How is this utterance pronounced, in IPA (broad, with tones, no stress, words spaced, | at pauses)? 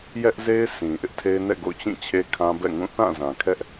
jɛ˦ʔze˦ɪ̯ sĩ˨ʔɪ˦ʔtʰe˦ɪ̯ nɛ̰˦˨ɡo̰˦˨ʊ̯t͡ɕĩ˦˨ t͡ɕʰe˦kʰã˦bɛ̰˦˨ŋũ˦˨ θã˦˨zã˨kʰɛ˦ʔ